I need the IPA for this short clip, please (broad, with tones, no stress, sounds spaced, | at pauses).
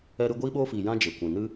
ɛ˧ ɾ ɨ˧ ɡʷ iː˧ ɓ oː˧ f iː˨ j ã˧ d͡ʒ e˨ kʷ ĩ˨ n ɨ˧